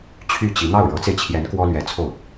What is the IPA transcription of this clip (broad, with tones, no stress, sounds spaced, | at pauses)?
t͡ɕʰ y˥˩ t͡ɕ i˧˥ n̪ ɑ˥˩ ʊ̯ ɻ ɤ˧˥ t͡s e˧ ɪ̯ t͡ɕʰ j ɛ˧˥ n k w ɔ˥ l ɥ ɛ˧˥ t͡sʰ o˥˩ ʊ̯